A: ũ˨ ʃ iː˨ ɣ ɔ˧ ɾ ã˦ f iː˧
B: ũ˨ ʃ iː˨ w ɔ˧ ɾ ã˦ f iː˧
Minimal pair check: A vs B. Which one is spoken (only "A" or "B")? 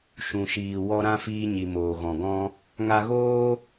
B